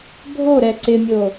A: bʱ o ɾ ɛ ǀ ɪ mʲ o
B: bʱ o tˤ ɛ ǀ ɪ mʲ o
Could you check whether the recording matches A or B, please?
A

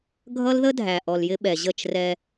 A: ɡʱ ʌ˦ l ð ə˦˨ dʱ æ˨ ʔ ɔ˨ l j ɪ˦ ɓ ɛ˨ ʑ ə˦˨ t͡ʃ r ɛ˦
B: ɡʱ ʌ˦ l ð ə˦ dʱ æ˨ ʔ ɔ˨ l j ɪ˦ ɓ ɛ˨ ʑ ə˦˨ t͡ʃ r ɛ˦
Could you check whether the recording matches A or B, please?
B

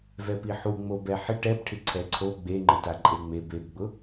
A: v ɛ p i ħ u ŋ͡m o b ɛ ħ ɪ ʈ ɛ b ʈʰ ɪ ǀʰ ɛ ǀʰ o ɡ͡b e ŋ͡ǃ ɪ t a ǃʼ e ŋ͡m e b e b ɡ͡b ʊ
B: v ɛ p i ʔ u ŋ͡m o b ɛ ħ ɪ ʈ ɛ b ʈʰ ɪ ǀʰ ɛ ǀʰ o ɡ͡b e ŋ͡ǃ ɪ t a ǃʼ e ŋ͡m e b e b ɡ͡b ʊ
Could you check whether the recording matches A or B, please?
A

